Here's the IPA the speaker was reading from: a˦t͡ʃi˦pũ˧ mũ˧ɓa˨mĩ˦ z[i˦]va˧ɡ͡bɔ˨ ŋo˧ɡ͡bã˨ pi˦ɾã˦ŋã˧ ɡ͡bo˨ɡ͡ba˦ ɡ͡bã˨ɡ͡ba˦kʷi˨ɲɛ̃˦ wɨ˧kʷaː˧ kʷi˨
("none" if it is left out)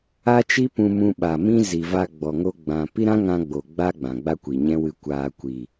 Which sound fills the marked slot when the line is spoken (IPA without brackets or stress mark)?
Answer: i˨